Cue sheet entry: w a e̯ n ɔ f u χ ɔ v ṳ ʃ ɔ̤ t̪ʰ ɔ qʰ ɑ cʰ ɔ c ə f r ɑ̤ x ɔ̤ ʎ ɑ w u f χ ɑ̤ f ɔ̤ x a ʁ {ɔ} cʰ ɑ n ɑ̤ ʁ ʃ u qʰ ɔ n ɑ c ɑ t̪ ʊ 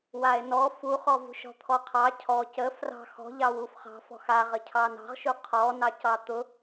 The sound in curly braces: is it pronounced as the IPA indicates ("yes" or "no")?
no